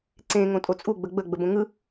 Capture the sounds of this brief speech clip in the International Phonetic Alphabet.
ǀ ẽ ŋ õ tʼ o t͡sʼ u ɡ͡b ə ɡ͡b ə ɡ͡b ə b õ ŋ ɯ

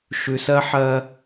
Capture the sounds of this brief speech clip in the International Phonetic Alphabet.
ʃ ʉ˨ s ɜ˦ ħ ɜ˦

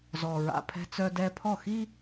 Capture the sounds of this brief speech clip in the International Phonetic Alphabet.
z ɔ˨ ɹ a̰˨ pʰ ɛ̤˦ t͡s œ˦ d ɛ˦ pʰ ɔ˦˨ x i˦

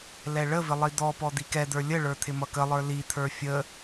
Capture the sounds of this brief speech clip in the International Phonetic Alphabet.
l ɛ ɭ ə v ɪ lˠ i d̪ ɔ p ɔ d̪ i k ɛ d̪ ə˞ lʲ ə ɭ ə˞ t̪ʰ ɪ m ʌ k ə lˠ ə˞ l i t̪ʰ ə˞ fʲ ə

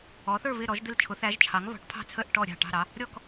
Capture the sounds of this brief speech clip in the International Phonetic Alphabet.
ɔ˩˥ θ ə˞˥˩ β ɪ˥˩ ɾ ɔ˩˥ ʒ d̪ ɪ˥˩ l t͡ʃʰ ʊ˩˥ θ æ˩˥ ʒ t͡ʃʰ ɑ˩˥ ŋ β ɔ̤˩˥ ʈ pʰ ɑ̤˥˩ t͡sʰ ə˥˩ ʔ ʈ ɔ˥˩ ɾʲ ɑ̤˥˩ ʈ ɑ̤˥˩ ɾ ɑ˩˥ | ɾʲ ɔ˥˩ k

